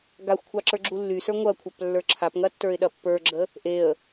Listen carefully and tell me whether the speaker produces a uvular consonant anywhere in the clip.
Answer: no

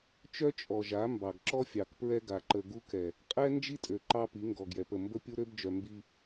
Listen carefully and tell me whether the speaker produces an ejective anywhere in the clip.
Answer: yes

